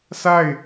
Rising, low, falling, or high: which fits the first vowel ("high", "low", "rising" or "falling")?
falling